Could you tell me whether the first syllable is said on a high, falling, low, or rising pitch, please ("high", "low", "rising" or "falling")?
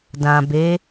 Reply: low